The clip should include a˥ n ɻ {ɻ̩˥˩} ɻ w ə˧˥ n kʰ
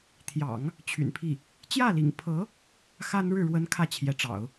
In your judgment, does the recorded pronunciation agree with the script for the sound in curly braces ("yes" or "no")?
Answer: yes